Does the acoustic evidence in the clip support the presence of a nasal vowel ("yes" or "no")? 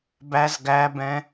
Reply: yes